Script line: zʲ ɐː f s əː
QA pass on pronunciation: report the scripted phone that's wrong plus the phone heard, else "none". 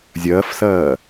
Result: əː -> ɐː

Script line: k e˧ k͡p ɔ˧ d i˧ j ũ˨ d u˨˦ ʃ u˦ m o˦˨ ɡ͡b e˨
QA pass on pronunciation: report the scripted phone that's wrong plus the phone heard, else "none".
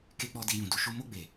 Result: none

